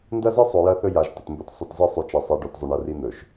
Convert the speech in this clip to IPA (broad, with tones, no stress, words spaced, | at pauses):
ndɐ˦zɨ˦sˤo˨ jɐ˦θɵ˦ ja˨ʒ tɐ˨tmbɵ˦t sˤʉ˨tzɨ˦˨ sˤʉ˦t͡ʃɐ˦sˤe˦ɖo˦t zˤʉ˨ɳɐ˨˦ri˦ n̪ɵ˨ʃ